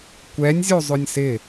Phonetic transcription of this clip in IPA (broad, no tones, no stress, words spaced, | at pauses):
kʷɛnʲzʲozˤʊnʲ sɪ